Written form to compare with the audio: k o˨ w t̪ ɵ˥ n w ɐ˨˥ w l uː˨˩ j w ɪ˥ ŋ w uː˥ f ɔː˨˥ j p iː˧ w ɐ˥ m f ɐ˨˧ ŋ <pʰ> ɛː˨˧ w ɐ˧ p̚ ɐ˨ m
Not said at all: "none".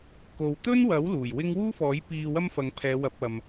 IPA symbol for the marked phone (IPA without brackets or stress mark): pʰ